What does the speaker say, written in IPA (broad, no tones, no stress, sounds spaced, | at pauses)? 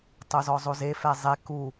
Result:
tˤ o z ɔ zˤ o z e f ɛ zˤ e k u